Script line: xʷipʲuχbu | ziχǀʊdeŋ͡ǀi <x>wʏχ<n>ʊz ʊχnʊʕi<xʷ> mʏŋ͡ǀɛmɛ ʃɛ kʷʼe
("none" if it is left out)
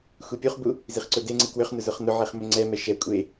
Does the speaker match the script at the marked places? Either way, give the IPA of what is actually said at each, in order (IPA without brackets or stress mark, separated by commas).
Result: k, n, χ